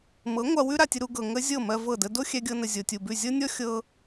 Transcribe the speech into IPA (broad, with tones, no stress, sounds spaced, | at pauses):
m ɤ˨˦ ŋʷ a˧ w ʉ˦ ɾ a˨ tʲ ə˧ ɾ u˧ ɡ ɤ˨ ŋ ə˦ zʲ ɤ˦˨ m ɜ˧ v ɤ˦˨ d ə˦ d o˦ xʲ ɛ˧ ɡʲ ɤ˧ n ə˨ zʲ o˨ tʲ u˨ b ʉ˦˨ zʲ ɤ˦ nʲ ɔ˦ xʲ ɤ˦